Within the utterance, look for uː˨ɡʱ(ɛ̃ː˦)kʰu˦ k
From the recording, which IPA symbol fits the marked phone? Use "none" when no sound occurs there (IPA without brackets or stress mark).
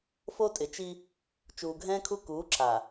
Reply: ɛ̃ː˦